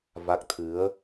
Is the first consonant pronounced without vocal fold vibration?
no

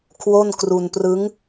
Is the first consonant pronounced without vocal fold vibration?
yes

